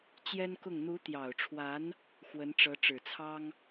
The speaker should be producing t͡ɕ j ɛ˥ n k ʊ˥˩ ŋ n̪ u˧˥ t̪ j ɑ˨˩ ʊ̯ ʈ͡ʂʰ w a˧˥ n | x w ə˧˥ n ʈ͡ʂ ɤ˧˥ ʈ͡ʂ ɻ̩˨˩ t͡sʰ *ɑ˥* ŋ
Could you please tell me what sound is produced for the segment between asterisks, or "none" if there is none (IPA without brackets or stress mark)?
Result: ɑ˥